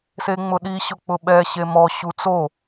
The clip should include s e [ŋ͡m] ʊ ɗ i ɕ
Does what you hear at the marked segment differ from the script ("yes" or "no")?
no